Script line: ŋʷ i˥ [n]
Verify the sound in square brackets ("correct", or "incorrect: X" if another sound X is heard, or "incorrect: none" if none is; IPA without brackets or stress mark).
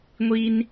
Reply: correct